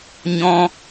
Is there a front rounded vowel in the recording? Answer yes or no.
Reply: no